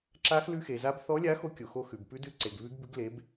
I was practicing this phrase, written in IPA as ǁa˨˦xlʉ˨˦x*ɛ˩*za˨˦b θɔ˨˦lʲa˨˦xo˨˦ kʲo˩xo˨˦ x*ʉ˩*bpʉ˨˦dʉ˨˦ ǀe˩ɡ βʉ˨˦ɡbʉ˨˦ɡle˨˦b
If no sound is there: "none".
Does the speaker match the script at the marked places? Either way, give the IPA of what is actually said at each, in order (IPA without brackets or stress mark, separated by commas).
e˩, ʉ˩